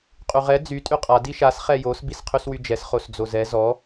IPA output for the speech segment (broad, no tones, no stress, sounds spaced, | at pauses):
qʼ y ʁ ɛ d͡z y tʼ y qʼ a d i ʃ a s χ ɛ j o s b i s qʰ y s w y d͡ʒ ɛ s χ o s d͡z o z ɛ z ɔ